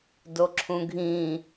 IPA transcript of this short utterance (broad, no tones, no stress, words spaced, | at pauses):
doǁʰũɡʱĩ